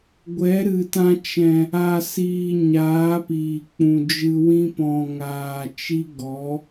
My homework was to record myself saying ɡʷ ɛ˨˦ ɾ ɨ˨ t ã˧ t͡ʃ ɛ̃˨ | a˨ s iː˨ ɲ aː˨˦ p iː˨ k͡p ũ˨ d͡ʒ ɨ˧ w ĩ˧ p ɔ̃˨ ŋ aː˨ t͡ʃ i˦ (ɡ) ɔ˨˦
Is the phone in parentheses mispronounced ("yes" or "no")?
no